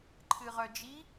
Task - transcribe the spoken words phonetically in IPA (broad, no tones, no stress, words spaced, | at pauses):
ǃʰɨʁœd͡ʒi